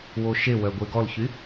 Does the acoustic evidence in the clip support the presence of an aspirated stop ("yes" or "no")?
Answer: no